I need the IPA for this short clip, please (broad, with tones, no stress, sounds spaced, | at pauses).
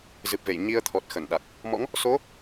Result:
z ɨ˨˩ p̚ v e˧˩ j ɲ i˧ ə̯ t̪ʰ ɔ˨˩ t̚ x ə˧˩ n ɗ a˨˩ k̚ | m ɔ̰˧˥ ŋ | s o˨˦